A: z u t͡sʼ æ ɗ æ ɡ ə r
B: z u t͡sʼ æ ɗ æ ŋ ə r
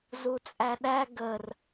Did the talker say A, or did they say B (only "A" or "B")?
A